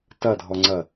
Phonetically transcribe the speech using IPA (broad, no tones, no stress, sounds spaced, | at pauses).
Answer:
t ɐ dʱ ɔ ŋ͡ǀ ɐ